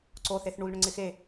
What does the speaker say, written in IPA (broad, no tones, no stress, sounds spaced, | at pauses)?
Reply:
ǀ o θ e θ ɳ u l ɳ ʊ ŋ͡ǀ ɪ x e